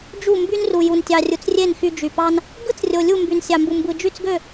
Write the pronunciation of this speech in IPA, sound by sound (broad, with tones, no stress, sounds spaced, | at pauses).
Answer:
d͡ʒ u˥˧ m b y˥ n r u˧ j u˧ n tʲ ɑ˧ rʲ u˧ t͡s rʲ e˥˧ n x y˧ d͡ʒ y˧ p ɑ˥ n | ɡ ɯ˥ t͡s rʲ o˧ lʲ u˥˧ m b y˧ n sʲ ɑ˧ m b u˧ m b ɯ˧ d͡ʒ y˥˧ t͡s ɡ ø˥˧